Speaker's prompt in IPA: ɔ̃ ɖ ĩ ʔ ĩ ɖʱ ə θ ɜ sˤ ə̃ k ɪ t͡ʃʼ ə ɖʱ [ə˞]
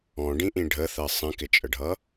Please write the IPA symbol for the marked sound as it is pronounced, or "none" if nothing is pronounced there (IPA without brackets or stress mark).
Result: ʌ